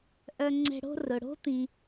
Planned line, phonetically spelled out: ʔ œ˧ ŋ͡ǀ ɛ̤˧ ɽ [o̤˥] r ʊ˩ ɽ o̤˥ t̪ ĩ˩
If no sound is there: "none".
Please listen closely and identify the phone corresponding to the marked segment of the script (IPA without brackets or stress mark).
o̤˥